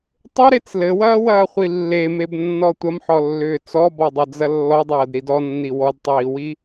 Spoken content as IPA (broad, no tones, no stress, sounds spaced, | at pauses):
tˤ ʏ ɾ e t͡s l ɘ w ɐː w ɐː χʷ i lː e m e b nː ɔ tʷ ɐ m ħ ɔ lː ʏː t͡s ɔ b ɔ dˤ ɐ d͡z ɐ lː ɔ dˤ ɐː d ɾ i d ɔ nː i w ɔ d tˤ iː w i